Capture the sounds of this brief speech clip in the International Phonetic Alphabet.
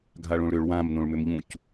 ɡʱ a ɭ õ ɭ ɾ ʏ ɭ w ã m n õ ɭ m ʏ m ʎ ũ c

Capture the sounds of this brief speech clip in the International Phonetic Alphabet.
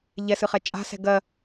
ʎ ɛ s ɨ χ ɛ t͡ʃʼ a̤ s ɛ̤ ɡ ɜ

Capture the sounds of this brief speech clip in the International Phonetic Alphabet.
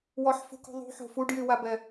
w ɔ ħ f ṳ k ṳ ðˤ ṳ ħ o̤ f u ɖ j y w a b ɛ

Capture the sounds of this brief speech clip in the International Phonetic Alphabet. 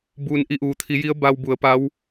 b uː˩ n ʔ i˧˩ ʔ uː˩ t̪ʰ i˩˧ j i˧˥ ə̯ b a˧ w b u˩˧ ə̯ p a˧˥ w

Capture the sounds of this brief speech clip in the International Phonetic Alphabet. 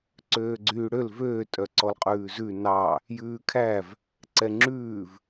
ǀ øː ɡ͡ǀ yː ɽ ø l v øː tʼ œ ǀ ɔ l qʼ ʉː z ʉ n ɑ | j ʉː kʰ æ v | ǀ ɛ ŋ͡ǁ ʉː v

